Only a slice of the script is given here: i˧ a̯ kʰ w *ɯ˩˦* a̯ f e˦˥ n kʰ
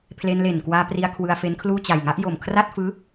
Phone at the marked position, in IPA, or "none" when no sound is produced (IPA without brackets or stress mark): ɯ˧